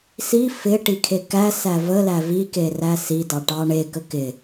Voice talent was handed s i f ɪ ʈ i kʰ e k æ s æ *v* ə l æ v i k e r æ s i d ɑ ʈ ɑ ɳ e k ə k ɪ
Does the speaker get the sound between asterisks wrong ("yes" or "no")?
no